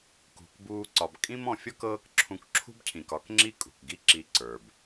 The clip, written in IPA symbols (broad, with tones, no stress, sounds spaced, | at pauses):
k ṳ˧ k b uː˦ ǀ ɒ˧ b kʼ ĩ˦ m ɔ̃˧ fʲ ɔ˦ k ɤː˦ k ǁʰ ũ˧ k ǁʰ ṳ˦ b cʰ ĩ˨ k ɒ˦ k ŋ͡ǁ i˦ kʼ ṳ˨ k ɡ i˦˨ ǁ i˧ ǀ ə˞˨ b